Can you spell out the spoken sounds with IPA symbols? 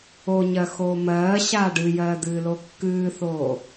o ɲ ɜ x oː m ɜː ɕ aː ɖ ɨ j ɜː d̪ ɨː l o kː ɨː θ oː

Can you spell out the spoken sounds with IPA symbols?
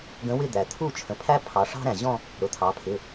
ɡ ə̃˧˥ w ɪ˥˧ d̪ æ˩ t̪ʰ u˥˧ t͡ʃʰ ə̃˩˧ pʰ æ˥ pʰ ɑ˩˧ ʂ ɑ̤˥ ɾ æ̃˩ ʑ ɔ̃˥˧ | ɾ ʊ˩˧˩ t̪ʰ ɑ˩˧ pʰ ɪ˩˧˩

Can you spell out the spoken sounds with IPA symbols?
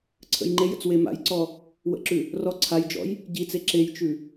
ǀʰ ə̰ j ŋ͡ǃ e j ə̰ t͡s w e m a̰ j ǀ ɔ | w ə̰ ǁ ʉ | r ɔ ǀʰ a j d͡ʒ ɔ̰ j | ɟ i t͡s e ǁ e j t͡ʃ ʉ

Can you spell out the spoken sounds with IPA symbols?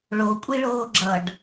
ɭ o kʷʼ i ɭ oː ɡ͡ǁ ʌ ɖ

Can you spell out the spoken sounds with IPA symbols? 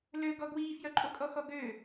l ø ɡ ɔ ɡ w iː f j œ ǃʼ o kʼ ɔ x ɔ ɡ ø

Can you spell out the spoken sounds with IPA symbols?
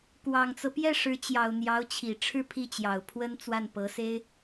k w ɑ˨˩ ŋ t͡s ɤ˦ p j ɛ˥˩ ʂ ɻ̩˧˥ t͡ɕ j ɑ˨˩ ʊ̯ n̪ j ɑ˧˥ ʊ̯ t͡ɕʰ i˨˩ ʈ͡ʂʰ ɻ̩˥˧ pʰ i˥˩ t͡ɕ j ɑ˨˩ ʊ̯ pʰ w ə˥ n t͡s w a˥˩ n p ɤ˧˥ s e˥ ɪ̯

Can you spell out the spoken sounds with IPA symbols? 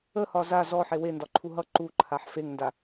ə h ɒ z a z ɔ ħ e w e n d ɒ ǃʰ u ɦ ʌ ǃ u ǃʰ a ħ f e ŋ n d a

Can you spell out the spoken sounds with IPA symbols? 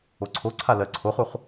o ǀʰ o ǀʰ a l ɜ ǀʰ o χ u χ

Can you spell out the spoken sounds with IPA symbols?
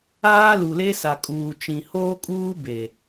aː˦ l u˨ l e˦ s a˨ kʼ uː˨ t͡ʃ ĩ˨ h oː˦ kʼ uː˦ b e˨

